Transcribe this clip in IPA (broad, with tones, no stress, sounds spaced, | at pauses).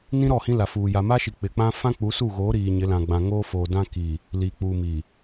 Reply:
n ĩ˦ ɾ ɔ˦˨ h ĩ˦ l a˨ f uː˨ j a˨ m a˦ ʃ i˨ k͡p ɪ˨ k͡p ã˦ f ã˦ k͡p u˨˦ s uː˦˨ ɣ oː˨˦ ɾ iː˨ ɲ ɪ˨˦ l ã˨ ɡ͡b ã˨ ŋ oː˦ f oː˨ d ã˦ k i˨ | l iː˨ k͡p uː˨ m i˨